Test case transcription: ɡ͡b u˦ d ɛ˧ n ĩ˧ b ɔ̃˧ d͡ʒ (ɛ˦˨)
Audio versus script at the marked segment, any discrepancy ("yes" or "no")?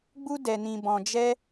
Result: yes